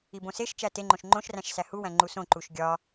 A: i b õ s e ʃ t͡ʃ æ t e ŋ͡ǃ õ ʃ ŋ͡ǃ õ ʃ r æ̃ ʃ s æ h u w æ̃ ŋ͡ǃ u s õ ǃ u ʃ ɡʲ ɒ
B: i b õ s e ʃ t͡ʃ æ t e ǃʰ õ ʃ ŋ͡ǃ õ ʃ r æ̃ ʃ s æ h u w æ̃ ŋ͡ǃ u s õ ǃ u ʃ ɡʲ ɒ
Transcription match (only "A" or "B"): A